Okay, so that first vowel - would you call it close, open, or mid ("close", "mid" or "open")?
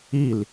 close